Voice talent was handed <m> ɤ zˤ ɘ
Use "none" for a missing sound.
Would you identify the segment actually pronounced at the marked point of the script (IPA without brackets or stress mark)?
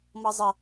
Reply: m